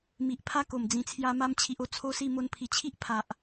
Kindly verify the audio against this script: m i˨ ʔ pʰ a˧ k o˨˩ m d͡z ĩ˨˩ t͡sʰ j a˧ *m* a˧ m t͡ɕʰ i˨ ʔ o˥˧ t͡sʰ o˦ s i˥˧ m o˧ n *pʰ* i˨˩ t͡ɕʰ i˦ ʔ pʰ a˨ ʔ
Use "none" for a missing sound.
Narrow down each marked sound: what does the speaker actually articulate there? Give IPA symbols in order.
m, pʰ

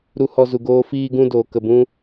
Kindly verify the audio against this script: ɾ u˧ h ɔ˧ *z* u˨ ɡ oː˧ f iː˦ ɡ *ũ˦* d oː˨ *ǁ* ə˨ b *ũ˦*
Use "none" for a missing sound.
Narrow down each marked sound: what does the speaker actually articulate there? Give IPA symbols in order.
z, ũ˦, k, ũ˦

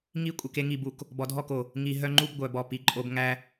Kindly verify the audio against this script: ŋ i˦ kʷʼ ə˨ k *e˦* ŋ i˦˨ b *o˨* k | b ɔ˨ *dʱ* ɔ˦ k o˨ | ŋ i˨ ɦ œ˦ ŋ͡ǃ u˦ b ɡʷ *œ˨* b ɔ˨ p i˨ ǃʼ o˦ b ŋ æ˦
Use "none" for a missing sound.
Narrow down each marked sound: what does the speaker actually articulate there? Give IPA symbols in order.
e˦, u˨, dʱ, œ˨

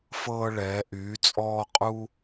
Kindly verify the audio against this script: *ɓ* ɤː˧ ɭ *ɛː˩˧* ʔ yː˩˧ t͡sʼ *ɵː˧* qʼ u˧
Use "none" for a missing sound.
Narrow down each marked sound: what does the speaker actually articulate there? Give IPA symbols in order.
f, ɛː˩˧, ɔː˧

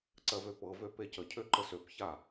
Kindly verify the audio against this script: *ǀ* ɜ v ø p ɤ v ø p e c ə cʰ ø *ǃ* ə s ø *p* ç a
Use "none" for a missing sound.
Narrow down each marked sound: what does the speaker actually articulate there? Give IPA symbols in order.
ǀ, ǃ, p

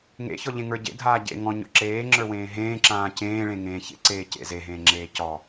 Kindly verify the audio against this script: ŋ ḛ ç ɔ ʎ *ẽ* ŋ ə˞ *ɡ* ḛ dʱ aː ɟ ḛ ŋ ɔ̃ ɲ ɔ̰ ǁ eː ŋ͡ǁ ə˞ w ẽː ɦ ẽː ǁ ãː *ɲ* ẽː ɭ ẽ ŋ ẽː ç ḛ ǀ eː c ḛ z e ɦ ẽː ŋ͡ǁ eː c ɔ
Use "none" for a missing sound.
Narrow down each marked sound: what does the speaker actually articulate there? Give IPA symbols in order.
ẽ, ɟ, c

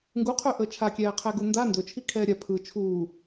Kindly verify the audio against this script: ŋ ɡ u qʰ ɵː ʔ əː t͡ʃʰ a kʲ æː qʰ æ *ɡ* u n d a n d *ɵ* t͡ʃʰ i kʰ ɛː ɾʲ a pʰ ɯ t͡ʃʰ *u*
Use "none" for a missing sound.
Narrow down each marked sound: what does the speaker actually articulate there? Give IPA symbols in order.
ɡ, ɵ, uː

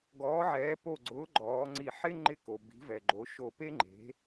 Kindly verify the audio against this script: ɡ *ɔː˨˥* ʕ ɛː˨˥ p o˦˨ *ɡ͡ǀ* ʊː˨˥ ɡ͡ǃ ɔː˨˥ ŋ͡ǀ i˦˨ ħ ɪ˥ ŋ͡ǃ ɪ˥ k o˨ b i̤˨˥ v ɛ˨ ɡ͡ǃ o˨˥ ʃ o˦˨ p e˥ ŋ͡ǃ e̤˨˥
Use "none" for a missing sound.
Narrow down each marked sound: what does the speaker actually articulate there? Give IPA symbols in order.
ɔː˨˥, ɡ͡ǀ

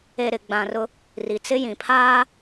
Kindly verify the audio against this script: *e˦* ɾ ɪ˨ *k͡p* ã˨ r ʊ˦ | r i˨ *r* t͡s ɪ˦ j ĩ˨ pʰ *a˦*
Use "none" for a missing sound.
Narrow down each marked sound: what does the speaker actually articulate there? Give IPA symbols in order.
e˨, ɡ͡b, none, aː˦

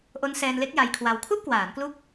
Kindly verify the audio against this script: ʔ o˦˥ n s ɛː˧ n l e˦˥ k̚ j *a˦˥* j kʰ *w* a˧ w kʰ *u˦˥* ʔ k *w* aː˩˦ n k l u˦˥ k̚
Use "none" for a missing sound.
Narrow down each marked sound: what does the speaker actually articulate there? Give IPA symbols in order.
a˧, w, u˥˩, w

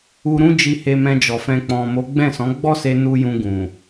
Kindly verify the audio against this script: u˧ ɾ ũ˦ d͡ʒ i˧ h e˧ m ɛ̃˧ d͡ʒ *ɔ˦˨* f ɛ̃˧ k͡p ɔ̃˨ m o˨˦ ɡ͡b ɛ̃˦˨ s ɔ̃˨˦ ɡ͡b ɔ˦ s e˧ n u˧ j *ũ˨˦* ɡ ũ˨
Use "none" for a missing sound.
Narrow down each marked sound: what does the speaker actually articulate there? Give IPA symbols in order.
ɔ˨, ũ˧

